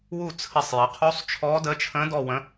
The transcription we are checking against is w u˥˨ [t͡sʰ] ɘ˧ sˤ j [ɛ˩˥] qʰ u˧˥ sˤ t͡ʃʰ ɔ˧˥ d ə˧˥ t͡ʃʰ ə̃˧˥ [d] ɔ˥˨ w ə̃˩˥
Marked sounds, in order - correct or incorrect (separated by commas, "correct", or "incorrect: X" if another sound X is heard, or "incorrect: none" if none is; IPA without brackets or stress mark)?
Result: correct, incorrect: ə˩˥, correct